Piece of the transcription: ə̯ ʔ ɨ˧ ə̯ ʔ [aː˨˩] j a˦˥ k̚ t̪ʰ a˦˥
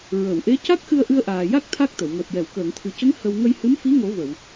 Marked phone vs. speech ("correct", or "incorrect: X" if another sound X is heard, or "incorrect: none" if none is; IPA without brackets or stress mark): correct